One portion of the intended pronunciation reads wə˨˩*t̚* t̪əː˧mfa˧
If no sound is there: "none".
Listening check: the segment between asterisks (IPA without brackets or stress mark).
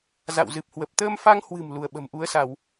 p̚